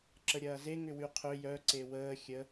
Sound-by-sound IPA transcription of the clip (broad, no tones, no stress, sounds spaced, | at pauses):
ǁ ə ɾʲ ɐː z e ŋ ʏ w y qʰ ø j œ ǀ e w əː xʲ ə